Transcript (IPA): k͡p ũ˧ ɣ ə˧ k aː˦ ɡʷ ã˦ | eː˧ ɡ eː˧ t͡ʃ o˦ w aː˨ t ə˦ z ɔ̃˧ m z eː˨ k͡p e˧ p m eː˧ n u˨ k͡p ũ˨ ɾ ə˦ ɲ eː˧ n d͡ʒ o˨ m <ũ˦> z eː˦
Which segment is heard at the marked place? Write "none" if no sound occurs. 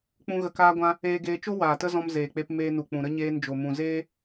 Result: ũ˨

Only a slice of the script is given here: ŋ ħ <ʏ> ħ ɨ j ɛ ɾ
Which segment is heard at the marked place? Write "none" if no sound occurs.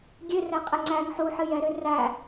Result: u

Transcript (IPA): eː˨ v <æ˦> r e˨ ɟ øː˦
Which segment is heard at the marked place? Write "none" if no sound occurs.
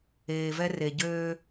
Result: ɛ˦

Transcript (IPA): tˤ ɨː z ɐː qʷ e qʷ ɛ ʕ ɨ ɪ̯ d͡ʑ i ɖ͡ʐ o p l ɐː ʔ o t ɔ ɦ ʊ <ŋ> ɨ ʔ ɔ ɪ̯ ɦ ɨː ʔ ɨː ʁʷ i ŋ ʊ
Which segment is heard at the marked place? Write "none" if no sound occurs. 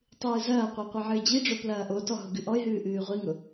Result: ɡ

